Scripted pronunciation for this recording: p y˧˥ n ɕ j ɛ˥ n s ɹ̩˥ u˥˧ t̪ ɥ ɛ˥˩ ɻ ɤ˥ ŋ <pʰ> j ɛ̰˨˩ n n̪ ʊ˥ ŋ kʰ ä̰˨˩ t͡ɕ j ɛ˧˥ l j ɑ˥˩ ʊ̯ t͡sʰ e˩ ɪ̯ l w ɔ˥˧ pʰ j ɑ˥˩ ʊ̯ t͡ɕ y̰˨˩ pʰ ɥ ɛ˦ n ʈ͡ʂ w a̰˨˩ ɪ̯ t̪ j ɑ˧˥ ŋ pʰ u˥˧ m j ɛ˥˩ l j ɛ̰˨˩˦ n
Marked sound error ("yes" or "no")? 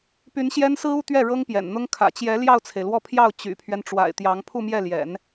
yes